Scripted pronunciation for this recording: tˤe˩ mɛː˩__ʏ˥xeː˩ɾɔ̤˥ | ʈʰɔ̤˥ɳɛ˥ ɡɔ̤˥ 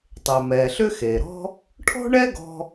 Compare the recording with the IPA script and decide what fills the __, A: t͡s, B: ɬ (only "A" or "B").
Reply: B